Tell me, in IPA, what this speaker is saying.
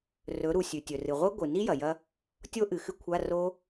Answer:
rɵ˩˧ɾu˩ sʲʉ˩tʲɵ˩ rɨ˩ʁʷe˦˥ɡʷɨ˩ni˦˥ jɐ˩jɐ˦˥ | tʲo˦˥ʔɨ˩xɨ˦˥ kʷʰa˧˥˧ ro˦˥

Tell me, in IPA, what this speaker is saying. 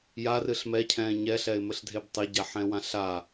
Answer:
jarɨɬ mɛcʰɛ̃ː ɲɛɬɛɪ̯ mɘɬdʱebtˤe ɟaħɛ̃wãɬa

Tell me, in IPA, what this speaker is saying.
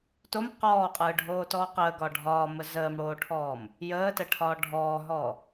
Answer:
tom qɔːqʼɯːɖʱoːtɔː qəːɡɒ ɖʱɒːmə zəːmɽoːʈʰɔːm | jəːtəʈʰɒː ɖʱɔːɦɔ

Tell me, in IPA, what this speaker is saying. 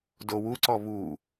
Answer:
dowuǀɔ βu

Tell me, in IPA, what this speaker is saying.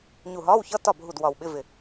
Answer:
ɲu˧˩ɦɒː˧˥˧wçʌ˧˥˧ tɒ˥˩bʱu˧˩d wɒ˧˩wɓɪ˧˥˧vɪ˧˩

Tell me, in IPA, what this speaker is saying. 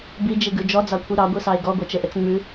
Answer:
bid͡ʒiɡʉ d͡ʒɔd͡zɑkʷʰi ɾɑɡʷisɑe̯ ɡɔɡʷɛt͡ʃɘʔɘt͡s ŋ͡mʉ

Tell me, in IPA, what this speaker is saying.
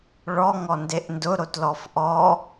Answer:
ɭɔ ŋɔndeʔndʊ ɾotlɔfʔɔ

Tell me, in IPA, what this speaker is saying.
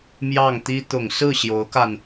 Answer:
mjɑ˥˩ŋt̪i˥ t̪ʊ˨˩ŋsɹ̩˥˩ ɕjo˧˥ʊ̯ka˧n

